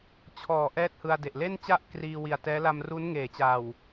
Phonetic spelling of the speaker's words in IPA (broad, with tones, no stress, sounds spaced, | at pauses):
t͡ɕʰ ɔː˩˦ ʔ ɛː˥˩ t̚ h ɯ˧ a̯ d e˨˩ ʔ l e˥˩ n t͡ɕ a˥˩ ʔ k r iː˧ w i˨˩ a̯ t ɛː˦˥ l a˧ m r u˦˥ n ŋ eː˩˦ t͡ɕ a˨˩ w